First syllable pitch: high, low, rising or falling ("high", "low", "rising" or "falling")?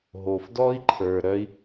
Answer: low